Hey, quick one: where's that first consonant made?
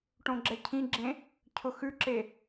retroflex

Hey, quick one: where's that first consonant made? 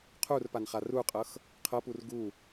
uvula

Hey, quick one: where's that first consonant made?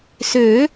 tongue tip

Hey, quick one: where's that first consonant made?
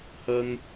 throat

